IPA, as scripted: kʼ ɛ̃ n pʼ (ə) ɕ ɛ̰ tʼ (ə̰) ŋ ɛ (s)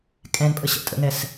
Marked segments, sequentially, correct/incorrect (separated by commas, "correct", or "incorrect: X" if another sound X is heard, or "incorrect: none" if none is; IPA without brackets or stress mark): correct, correct, correct